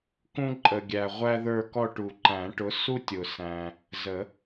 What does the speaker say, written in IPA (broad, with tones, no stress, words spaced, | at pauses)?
kũ˥ǃʼə˨ ɡʲæ˨ ʁʷæ˥ðə˞˥˧kɔ˥˧ ʈu˨ ǃæ̃˨˩˦ʈʊ˨˥ su˥tʲʊ˨ sæ̃˨ | zə˨˩˦